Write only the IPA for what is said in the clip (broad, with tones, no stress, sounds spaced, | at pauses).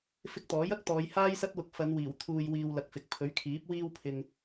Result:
f ɪ˧ k̚ t̪ ɔː˨˥ j ɐ˥ k̚ t̪ ɔː˨˧ j h aː˥ j s ɐ˥ t̚ w ʊ˧ k̚ f ɐ˨˧ n w iː˨˩ w t̪ʰ uː˨ j w iː˨ w l ɐ˨˥ k̚ f ɪ˨ k̚ pʰ ɵ˨˥ ɥ kʰ iː˨˥ p̚ w iː˧ w pʰ ɪ˨ ŋ